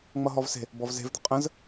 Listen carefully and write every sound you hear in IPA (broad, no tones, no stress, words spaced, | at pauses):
ŋ͡mʌɦɔvse̤ | bɔvze̤vd̪ə̤ qʼə̃z